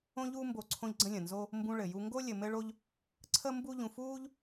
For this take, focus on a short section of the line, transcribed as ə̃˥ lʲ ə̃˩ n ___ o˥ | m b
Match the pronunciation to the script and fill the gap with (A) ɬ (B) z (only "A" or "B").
B